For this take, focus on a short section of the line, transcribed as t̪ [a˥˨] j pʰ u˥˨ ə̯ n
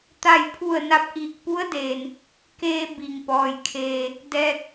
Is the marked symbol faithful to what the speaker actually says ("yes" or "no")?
yes